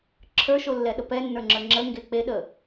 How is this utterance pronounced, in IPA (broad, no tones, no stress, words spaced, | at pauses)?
ǁʰə˞ʃolːɛɗə pɛnːə˞ŋ͡ǁə˞ ŋ͡ǁəŋɡe k͡peɗə